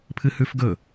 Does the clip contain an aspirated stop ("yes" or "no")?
yes